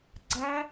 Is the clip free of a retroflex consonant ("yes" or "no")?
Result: yes